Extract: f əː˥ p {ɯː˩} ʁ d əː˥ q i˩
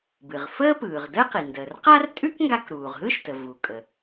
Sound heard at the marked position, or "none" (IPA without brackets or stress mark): ɯː˩